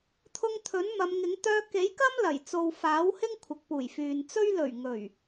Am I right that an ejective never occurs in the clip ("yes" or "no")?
yes